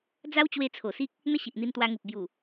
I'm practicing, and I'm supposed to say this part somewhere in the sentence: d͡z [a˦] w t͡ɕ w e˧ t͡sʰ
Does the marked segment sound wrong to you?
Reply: no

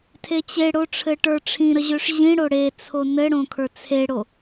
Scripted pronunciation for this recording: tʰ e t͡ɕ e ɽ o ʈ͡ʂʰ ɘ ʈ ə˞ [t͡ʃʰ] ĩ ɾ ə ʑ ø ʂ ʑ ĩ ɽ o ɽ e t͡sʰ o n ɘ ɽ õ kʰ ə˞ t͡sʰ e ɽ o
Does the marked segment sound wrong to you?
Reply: yes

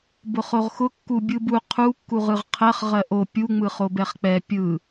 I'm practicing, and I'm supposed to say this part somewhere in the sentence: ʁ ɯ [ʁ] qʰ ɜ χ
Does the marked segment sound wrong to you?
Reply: no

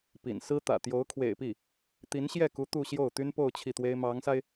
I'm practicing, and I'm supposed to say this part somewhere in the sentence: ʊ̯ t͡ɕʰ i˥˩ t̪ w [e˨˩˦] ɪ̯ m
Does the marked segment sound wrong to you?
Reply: yes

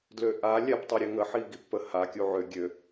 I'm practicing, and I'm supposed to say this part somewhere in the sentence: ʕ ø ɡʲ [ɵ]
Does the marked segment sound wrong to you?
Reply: yes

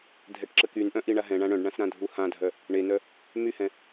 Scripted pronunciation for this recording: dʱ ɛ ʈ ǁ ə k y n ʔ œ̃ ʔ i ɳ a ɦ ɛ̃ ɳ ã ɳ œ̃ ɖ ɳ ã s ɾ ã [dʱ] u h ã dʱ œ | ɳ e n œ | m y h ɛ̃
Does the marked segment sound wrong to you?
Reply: no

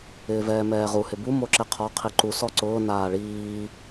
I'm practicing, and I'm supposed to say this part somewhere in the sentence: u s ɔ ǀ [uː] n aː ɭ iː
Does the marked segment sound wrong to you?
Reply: yes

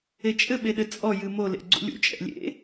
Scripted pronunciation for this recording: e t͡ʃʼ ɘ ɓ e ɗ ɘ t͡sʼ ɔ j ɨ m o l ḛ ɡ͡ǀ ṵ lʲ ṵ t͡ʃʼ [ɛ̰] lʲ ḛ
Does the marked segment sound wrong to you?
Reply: no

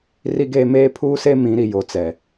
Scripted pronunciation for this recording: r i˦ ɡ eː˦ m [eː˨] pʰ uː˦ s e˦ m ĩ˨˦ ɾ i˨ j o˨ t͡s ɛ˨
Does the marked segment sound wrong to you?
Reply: yes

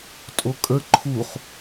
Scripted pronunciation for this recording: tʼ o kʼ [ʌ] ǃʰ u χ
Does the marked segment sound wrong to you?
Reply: yes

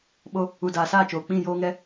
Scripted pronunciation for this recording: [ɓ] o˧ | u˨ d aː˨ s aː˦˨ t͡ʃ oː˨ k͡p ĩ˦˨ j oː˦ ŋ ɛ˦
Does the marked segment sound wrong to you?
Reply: no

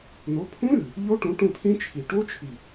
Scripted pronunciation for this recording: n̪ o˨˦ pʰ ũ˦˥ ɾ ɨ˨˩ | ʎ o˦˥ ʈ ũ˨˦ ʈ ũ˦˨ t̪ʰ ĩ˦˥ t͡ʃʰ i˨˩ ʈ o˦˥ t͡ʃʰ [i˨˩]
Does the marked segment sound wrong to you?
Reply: no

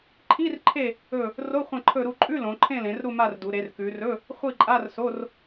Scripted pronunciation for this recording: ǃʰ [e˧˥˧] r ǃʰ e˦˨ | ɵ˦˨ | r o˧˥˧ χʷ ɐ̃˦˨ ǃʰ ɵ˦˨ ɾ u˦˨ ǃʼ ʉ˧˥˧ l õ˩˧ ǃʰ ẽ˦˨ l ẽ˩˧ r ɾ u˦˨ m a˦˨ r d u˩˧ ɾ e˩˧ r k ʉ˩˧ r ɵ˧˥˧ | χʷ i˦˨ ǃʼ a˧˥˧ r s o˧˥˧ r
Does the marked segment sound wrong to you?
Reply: yes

